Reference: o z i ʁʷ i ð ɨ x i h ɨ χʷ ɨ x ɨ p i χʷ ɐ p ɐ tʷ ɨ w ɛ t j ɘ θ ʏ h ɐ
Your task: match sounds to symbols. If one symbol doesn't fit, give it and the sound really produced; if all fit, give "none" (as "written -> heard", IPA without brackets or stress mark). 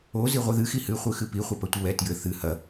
ʏ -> ɨ